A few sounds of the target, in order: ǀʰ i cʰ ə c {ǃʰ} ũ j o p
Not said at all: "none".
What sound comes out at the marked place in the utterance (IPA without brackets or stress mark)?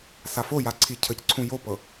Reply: ǀʰ